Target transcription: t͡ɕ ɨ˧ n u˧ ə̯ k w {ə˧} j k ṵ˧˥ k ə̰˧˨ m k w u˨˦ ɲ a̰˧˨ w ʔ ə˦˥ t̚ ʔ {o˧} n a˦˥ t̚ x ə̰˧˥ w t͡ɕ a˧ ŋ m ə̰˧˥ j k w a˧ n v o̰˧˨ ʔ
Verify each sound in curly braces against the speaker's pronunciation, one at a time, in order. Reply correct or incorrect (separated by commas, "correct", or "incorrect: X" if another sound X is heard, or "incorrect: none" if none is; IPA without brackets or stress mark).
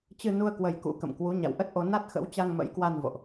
correct, correct